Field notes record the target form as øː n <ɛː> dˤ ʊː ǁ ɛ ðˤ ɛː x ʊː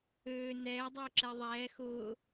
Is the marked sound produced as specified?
yes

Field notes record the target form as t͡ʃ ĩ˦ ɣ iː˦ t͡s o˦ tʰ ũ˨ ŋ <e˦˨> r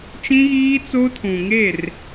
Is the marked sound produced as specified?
yes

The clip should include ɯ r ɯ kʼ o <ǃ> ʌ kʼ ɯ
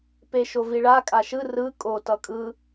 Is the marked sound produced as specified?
no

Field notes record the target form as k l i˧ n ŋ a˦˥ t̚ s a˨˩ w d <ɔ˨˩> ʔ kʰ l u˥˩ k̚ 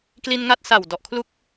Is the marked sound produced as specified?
yes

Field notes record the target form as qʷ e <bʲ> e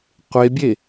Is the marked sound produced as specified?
yes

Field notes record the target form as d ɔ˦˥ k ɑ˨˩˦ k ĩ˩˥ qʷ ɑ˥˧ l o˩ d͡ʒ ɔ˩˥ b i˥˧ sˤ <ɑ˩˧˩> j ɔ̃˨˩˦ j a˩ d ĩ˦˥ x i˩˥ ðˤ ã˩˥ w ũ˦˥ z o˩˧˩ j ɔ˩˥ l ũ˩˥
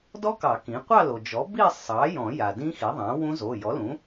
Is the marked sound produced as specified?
no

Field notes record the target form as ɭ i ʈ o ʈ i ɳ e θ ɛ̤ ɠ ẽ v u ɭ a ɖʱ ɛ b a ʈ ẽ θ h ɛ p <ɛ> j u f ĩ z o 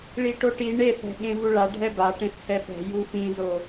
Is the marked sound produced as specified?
no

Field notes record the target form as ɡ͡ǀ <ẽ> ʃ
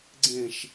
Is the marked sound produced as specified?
yes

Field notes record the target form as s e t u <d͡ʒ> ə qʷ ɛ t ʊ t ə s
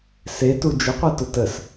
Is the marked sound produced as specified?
yes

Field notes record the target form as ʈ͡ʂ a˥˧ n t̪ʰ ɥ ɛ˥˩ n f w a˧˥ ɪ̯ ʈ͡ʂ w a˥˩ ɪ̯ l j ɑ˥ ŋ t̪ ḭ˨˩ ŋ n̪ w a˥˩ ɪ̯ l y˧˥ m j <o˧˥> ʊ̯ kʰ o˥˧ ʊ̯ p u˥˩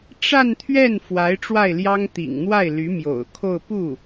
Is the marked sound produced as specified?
no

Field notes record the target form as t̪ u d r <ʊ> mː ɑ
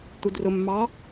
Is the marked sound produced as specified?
yes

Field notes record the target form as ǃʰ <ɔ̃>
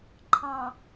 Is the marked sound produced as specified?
no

